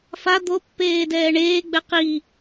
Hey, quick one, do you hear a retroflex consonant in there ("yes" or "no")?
yes